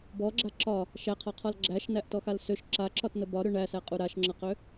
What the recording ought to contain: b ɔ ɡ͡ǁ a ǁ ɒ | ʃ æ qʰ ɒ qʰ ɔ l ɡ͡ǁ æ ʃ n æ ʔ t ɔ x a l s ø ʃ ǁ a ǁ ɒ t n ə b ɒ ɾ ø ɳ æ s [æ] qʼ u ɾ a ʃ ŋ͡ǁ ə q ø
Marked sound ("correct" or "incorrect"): correct